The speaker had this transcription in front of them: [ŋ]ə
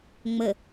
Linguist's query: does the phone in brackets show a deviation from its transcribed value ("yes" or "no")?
yes